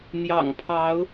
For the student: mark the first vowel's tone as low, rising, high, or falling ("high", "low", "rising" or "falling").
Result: low